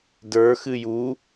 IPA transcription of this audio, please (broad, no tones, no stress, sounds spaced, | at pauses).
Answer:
d ə˞ x ɨ j u